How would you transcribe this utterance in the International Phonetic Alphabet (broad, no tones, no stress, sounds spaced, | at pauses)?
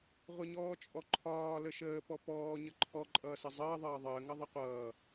ʁʷ ə ɲ ɔː t͡ʃʼ ɔ ǃʰ ɒː l ə ʃ əː p ɔ p ɔː ɲ ə ǃʰ ɔ ǃʼ ʌː s ə zˤ əː ðˤ ʌː ðˤ əː ŋ ʌ ðˤ ə qʷ ʌː